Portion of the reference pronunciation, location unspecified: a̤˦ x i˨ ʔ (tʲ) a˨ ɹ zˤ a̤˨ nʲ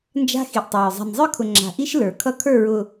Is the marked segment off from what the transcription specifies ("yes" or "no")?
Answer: yes